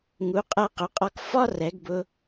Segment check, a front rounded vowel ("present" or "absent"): absent